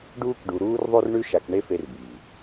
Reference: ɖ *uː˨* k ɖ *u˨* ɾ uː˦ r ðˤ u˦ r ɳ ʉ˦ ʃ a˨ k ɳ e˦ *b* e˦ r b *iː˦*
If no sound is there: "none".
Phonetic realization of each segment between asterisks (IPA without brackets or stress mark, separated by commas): uː˦, u˨, f, iː˨